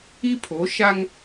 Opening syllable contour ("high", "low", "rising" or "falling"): high